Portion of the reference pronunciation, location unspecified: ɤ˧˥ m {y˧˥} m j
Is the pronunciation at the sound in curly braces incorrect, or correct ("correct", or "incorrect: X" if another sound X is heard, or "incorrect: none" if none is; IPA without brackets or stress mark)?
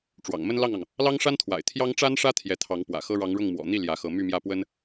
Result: incorrect: y˥˧